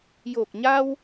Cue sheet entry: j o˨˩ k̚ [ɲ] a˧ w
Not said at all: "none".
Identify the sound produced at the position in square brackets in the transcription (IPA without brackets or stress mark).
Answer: ɲ